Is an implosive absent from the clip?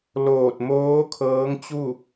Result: yes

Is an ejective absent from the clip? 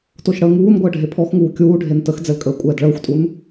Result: no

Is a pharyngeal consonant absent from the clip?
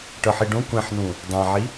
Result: no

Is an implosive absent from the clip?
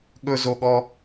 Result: no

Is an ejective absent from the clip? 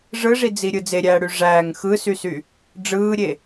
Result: yes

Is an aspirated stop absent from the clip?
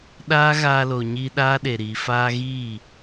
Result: yes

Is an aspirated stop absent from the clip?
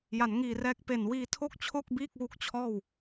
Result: no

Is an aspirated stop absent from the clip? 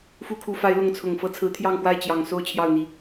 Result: no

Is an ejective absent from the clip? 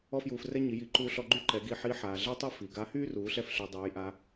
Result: yes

